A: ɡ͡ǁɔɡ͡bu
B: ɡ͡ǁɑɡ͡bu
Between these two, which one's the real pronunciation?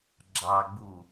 B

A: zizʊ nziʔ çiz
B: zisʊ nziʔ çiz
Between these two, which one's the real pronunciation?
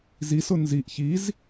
B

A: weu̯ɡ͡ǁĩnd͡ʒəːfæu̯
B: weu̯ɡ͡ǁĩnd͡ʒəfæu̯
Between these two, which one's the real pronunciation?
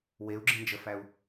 B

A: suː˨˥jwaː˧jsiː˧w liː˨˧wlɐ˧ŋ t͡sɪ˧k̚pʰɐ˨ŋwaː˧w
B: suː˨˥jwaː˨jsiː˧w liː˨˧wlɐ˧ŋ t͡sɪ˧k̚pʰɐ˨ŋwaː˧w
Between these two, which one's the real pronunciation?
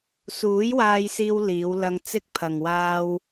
A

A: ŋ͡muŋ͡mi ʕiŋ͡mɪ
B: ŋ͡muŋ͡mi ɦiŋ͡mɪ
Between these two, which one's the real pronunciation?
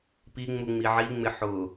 A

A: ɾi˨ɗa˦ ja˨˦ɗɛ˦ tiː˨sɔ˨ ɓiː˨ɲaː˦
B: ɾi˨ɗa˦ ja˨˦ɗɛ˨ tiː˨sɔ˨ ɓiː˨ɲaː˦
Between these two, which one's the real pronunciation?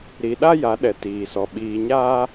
B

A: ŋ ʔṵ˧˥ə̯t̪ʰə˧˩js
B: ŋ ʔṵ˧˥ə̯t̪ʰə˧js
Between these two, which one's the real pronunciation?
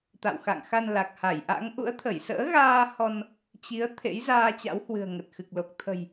A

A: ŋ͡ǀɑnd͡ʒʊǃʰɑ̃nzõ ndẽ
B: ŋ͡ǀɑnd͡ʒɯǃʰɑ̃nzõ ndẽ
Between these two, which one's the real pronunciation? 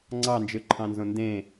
B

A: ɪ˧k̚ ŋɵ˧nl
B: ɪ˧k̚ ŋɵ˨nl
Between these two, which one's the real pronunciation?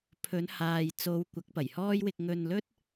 A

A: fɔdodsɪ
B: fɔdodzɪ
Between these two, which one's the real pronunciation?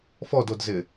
B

